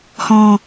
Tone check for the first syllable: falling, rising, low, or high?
low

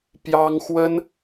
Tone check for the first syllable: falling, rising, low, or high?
high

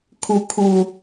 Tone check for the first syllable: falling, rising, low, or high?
rising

